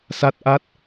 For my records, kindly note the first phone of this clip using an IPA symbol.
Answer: s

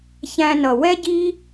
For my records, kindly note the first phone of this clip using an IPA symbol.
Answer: ç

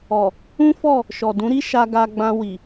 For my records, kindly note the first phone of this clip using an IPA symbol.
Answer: ɔ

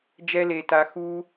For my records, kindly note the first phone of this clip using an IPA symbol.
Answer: d͡ʒ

